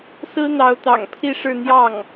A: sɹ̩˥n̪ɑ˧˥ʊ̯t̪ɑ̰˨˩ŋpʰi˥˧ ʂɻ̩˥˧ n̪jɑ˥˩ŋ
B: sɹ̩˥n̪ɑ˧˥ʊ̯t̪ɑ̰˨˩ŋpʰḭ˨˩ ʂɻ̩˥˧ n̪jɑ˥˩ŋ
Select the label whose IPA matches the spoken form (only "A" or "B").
A